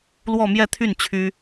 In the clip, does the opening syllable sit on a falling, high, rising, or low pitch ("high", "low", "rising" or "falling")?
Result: falling